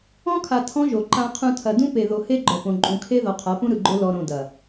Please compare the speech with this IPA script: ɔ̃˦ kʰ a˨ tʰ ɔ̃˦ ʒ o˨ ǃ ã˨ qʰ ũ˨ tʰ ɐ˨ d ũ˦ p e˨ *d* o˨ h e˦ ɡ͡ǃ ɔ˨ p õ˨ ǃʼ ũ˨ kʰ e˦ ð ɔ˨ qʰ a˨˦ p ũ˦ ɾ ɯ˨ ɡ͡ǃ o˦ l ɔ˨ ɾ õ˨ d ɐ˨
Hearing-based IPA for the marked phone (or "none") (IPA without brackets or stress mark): ð